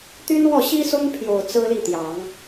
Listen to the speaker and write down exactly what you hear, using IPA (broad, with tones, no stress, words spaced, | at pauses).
t̪y˥nwɔ˥˩ ɕi˥sʊ˥ŋpʰjo˨˩ʊ̯ t͡sɹ̩˥li˥˩t̪jɑ˨˩˦ŋ